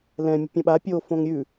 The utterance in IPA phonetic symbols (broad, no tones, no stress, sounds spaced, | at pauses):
l ɛ̃ mʲ ə̤ pʲ õ ɓ a pʲ o f õ ŋ ɾʲ ʉ